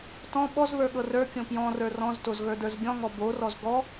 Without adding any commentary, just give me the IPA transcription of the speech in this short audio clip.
t ɔ̃ ɓ ɔ z β ə˞ ɠ ɤ r ə˞ kʲ õ p j ɔ̃ r ə˞ r ɔ̃ z t o z ɣ ə˞ d ə˞ z ɡʲ ɔ̃ ŋ ɔ b o r ɔ z ɡ ɔ

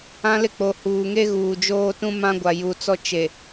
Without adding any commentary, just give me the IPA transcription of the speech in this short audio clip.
ã˦ l ɪ˦ k͡p o˨ h uː˨ ŋ e˦ ɣ uː˨ d͡ʒ oː˦ t ũ˦ m ã˦ ɡʷ a˨ j u˨ t͡s ɔ˦ t͡ʃ e˨

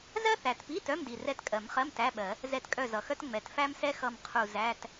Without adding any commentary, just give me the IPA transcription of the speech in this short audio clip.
z ɜ˥ θ æ˨˩ t p i˧˥˧ t œ˧˥˧ m d i˨˩ r ɛ˦˨ t kʼ ɜ˨˩˦ m χ ɜ˧˥˧ m t æ˧˥˧ ɓ ɜ˨˩˦ | z ɛ˦˨ t kʼ œ˦˨ z ʌ˨˩ x œ˥ t ŋ͡m ɛ˨˩ t f æ˥ m s ɛ˥ x ʌ˦˨ m qʰ u˦˨ z æ˧˥˧ t

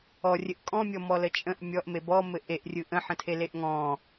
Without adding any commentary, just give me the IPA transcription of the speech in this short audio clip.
ɔ rʲ ɘ ʔ kʼ ɔ̃ mʲ ɔ m ɔ l ə t͡ʃʼ ə̃ ʔ mʲ ɔ ʔ m e b ɔ m ɘ ʔ e ʔ rʲ ɯ ʔ ə̃ ħ ə̃ tʰ e l e ʔ ŋ ɔ̃

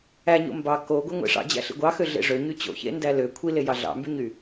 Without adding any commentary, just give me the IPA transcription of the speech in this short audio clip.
æ ɲ o̰ m b ɑ k o ɡʷ e ŋʷ ḛ ʂ ɑ̰ d͡ʑ æ̰ ɬ ḭ ɡʷ ɑ x ø ɮ ḛ ʐ ø ɲ y t͡ɕ o̰ ç ḛ n d æ l ø kʷʰ i l e j ɑ ɮ ɑ̰ m b y ɲ y

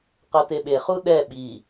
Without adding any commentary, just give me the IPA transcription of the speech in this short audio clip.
q ɤ t e ɓ e χ u ɗ ɛ ɓ i

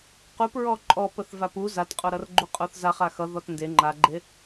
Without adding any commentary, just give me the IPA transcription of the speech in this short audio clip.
q u p ɹ ɔ ǃʼ ɔ p ə θ v a p u z a t qʼ o ɾ ʌ r ɡ͡ǃ u qʼ o θ z a χ a x ʌ ð ɔ t n d e ŋ͡ǃ a ɡ͡ǃ e

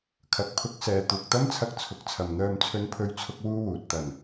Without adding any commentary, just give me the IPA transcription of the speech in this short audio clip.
kʰ ɐ˨ k̚ pʰ ʊ˧ k̚ s ɛː˨ t̪ uː˨ k̚ t̪ ɐ˥ m t͡sʰ ɐ˧ k̚ t͡sʰ ʊ˨˥ k̚ t͡sʰ ɐ˨ m n̪ œː˧ m t͡sʰ ɵ˧ n pʰ ɵ˧ ɥ t͡sʰ ʊ˧ k̚ w uː˥ w uː˨ t̚ t̪ ɐ˨˩ n

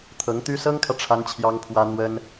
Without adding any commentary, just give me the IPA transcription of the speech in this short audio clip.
t̪ʰ ɤ˧˥ ŋ t̪ y˥ s ɤ˥ ŋ kʰ ä˨ ʈ͡ʂʰ a˥ n t͡ɕʰ j ɑ˥ ŋ pʰ w ä˥ n̪ w ə˥ n

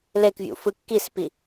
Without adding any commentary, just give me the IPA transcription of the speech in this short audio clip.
l e k vʲ ṵ f ɯ kː i s p i

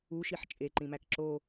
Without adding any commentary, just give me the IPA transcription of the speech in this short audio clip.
u ʃ i ħ t͡ʃʼ e ǃ ĩ m æ k ǁ o

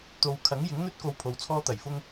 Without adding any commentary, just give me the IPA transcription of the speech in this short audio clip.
t̪ o˧ w kʰ ɐ˨˥ ŋ j ɪ˨˥ ŋ n̪ ɵ˥ t̚ k o˧ w pʰ o˨˧ w t͡sʰ ɔː˥ t̪ ɐ˨˩ j f ʊ˥ ŋ

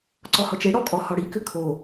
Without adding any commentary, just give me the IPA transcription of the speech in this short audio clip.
ǀ ɔ h ɔ t͡ʃ e ɽ ɔ kʼ ɔ h ɔ ɽ i k ʏ kʰ o

